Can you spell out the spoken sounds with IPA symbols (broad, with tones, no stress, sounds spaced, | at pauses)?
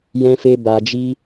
j ɛ̃˧ f e˧ b a˧ d͡ʒ i˦